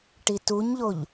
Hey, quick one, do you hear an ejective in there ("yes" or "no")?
no